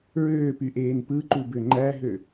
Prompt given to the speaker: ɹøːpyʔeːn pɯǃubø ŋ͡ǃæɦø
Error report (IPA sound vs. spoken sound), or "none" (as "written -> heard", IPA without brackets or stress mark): none